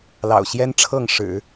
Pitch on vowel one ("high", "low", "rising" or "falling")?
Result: low